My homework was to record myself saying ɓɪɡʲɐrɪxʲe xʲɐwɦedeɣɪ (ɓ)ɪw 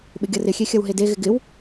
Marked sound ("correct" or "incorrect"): incorrect